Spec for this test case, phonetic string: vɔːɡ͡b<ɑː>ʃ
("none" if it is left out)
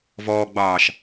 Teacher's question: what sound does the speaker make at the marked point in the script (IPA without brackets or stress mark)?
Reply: ɑː